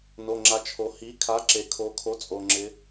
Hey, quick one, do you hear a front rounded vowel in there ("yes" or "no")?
no